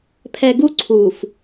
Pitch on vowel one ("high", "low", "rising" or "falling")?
low